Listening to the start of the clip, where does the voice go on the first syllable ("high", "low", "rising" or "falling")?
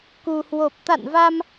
low